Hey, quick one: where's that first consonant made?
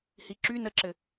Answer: throat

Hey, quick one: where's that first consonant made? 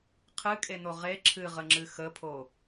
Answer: uvula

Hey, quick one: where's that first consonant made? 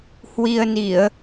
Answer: throat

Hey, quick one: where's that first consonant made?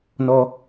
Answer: tongue tip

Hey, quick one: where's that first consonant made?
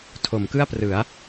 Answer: tongue tip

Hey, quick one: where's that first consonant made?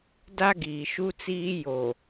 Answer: tongue tip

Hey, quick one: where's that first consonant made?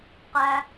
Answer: uvula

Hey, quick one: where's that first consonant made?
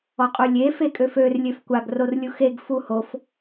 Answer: uvula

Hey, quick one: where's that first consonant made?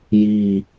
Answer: palate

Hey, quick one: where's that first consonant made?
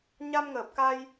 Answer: palate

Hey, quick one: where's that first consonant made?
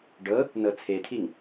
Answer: retroflex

